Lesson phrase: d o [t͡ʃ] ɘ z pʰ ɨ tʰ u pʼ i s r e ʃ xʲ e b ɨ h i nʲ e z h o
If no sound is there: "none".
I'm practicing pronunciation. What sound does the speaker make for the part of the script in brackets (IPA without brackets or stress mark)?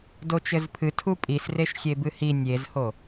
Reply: t͡ʃ